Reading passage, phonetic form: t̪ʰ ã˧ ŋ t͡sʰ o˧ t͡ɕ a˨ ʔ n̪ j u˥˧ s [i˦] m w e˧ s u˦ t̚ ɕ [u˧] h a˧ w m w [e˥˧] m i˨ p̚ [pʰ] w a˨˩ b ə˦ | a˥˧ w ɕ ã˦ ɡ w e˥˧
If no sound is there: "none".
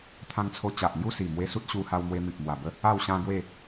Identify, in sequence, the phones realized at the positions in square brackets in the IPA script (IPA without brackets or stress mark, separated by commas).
i˨˩, u˧, e˧, m